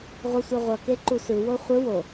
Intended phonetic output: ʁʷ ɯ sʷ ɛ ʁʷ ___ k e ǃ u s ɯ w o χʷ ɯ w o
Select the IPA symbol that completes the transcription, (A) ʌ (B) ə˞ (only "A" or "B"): A